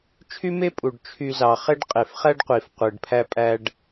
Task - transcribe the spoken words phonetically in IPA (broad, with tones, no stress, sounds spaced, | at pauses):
t͡ʃʰ y˥ m e˥ pʼ u˩ ɖ t͡ʃʰ y˧ z ɑ˩ χ e˥ ɖ qʼ e˩ f χ æ˥ ɖ qʷ i˩ f qʷ ɯ˩ ɖ pʰ æ˥ pʼ æ˥ ɖ